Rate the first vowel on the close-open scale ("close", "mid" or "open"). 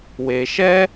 mid